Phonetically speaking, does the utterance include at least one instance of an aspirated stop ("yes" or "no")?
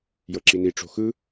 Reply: no